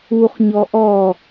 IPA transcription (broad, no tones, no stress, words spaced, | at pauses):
uχɲɔ ʔɔ